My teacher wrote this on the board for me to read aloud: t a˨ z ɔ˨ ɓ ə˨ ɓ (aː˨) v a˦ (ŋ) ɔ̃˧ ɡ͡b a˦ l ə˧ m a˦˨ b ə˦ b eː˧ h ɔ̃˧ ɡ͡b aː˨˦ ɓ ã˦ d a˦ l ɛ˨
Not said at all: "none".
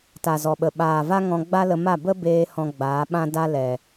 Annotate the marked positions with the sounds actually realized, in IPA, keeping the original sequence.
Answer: aː˨, ŋ

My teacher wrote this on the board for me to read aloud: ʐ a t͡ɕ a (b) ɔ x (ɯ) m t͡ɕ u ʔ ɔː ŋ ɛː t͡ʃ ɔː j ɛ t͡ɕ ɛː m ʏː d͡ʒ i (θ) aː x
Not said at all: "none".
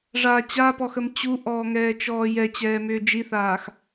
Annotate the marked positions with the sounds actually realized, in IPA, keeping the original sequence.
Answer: p, ə, θ

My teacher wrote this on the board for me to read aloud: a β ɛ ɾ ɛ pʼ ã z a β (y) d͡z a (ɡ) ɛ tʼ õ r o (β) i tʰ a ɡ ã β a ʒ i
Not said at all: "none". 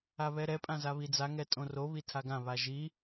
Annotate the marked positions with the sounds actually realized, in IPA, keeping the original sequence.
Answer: i, ŋ, β

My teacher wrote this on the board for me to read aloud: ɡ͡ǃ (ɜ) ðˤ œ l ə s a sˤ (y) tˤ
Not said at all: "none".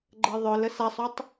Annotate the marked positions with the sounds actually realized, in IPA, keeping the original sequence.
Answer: ɜ, u

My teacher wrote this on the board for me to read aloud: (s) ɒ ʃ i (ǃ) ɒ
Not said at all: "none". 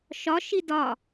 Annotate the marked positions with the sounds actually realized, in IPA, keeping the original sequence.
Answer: ʃ, d

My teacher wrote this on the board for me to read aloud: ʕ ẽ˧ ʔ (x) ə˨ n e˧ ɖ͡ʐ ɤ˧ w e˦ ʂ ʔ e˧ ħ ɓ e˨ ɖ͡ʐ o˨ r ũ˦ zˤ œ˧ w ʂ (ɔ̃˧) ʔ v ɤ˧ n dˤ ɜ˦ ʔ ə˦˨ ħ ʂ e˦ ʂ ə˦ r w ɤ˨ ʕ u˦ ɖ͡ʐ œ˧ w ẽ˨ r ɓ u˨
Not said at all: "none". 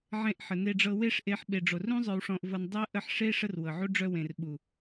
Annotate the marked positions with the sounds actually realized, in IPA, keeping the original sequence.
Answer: ħ, ɔ̃˧

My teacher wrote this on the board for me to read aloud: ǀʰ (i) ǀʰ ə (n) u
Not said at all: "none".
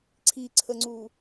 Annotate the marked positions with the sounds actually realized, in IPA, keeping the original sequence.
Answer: i, ŋ͡ǀ

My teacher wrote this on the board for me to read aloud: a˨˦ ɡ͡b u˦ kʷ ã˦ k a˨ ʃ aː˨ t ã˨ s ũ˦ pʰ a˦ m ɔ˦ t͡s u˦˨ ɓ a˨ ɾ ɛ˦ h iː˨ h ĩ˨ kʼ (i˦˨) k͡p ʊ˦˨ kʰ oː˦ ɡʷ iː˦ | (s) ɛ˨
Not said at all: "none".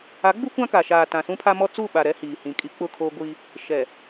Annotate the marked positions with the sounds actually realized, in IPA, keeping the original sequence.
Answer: i˦, ʃ

